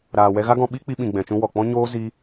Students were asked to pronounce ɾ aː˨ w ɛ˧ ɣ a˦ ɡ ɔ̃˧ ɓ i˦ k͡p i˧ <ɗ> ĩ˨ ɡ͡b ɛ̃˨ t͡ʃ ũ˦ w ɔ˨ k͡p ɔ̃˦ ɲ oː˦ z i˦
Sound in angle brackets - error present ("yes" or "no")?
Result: yes